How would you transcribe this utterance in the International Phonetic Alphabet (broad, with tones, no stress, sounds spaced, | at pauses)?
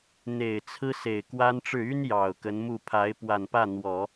n̪ e˨˩ ɪ̯ t͡sʰ ɹ̩˥ s e˨˩ ɪ̯ k w a˥ n ʈ͡ʂ ɻ̩˥˩ y˥ n j ɑ˨˩ ʊ̯ k ə˧˥ n m u˥˩ pʰ a˧˥ ɪ̯ p w a˨˩ n p ä˥˩ n̪ w ɔ˨˩˦